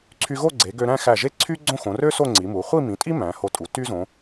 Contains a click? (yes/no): yes